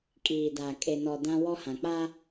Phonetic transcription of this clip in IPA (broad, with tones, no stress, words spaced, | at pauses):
kʼiː˨da˨ kʼe˨nɔ˨ dã˦wɔ˦hã˨k͡pa˦